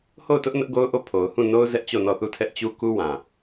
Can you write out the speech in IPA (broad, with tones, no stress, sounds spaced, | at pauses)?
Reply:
h o˦˨ ʊ̯ t ʊ˦ ʔ n ʊ˦ ʔ ɡ o˦ ʊ̯ ʔ o˦˨ pʰ o˨ ʊ̯ h ũ˦˨ n o˦ ʊ̯ z ɛ˦ ʔ t͡ɕ o˦˨ n ɔ˦˨ θ u˦˨ tʰ ɛ˦ ʔ t͡ɕ u˦ k u˦ w ã˨